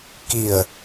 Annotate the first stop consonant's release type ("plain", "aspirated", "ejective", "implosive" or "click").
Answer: plain